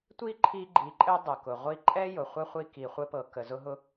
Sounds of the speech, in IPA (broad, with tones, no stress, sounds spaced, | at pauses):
tʷ i˦ ǃʰ i˧ ɡ͡ǃ i˨ ǃʼ ɘ˧ dˤ ʊ˨ k ʊ˨ ʁʷ i˦˨ ǃʼ ɛ˦ j ʊ˨ χʷ ɘ˦ χʷ i˧ k i˨ χʷ ɘ˦ p ɤ˨ k ə˨ z ʊ˧ ɦ ʊ˧